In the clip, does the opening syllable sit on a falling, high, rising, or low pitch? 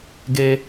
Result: high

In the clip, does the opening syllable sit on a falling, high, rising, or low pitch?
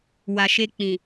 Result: low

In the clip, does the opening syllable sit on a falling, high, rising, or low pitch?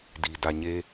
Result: low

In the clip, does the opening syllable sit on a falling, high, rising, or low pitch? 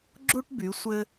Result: high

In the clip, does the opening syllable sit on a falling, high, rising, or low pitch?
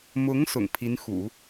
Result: rising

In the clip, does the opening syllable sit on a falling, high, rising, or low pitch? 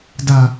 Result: low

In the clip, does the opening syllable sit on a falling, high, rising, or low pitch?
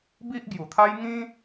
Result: high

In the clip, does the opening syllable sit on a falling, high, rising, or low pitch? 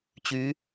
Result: rising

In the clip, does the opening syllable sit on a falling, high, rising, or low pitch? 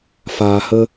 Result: low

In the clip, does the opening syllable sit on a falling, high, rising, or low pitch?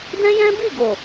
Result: high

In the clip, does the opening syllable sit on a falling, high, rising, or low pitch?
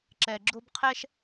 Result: low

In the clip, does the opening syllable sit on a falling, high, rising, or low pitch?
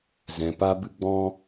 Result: low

